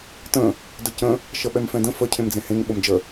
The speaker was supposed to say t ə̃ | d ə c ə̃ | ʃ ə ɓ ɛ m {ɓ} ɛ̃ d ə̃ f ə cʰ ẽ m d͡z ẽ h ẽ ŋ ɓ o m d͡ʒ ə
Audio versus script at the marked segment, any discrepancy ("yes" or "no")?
yes